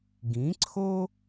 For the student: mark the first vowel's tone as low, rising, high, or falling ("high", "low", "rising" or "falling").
rising